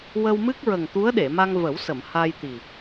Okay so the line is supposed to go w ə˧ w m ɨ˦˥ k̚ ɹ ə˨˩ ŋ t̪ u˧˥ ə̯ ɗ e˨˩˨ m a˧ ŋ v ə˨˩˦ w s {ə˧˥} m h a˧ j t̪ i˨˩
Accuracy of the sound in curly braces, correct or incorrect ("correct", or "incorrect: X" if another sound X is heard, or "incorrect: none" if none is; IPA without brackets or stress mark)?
incorrect: ə˨˩˨